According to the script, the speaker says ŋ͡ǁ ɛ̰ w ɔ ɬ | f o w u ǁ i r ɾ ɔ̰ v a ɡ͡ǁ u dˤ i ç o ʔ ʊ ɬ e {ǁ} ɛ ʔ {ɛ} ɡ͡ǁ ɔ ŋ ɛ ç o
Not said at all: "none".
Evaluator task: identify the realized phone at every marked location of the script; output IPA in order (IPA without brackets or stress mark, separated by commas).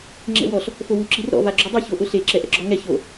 ǁ, ɛ̰